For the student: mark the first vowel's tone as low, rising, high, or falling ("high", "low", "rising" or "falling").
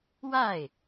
falling